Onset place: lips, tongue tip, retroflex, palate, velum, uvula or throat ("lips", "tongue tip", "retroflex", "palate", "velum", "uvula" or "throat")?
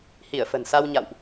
throat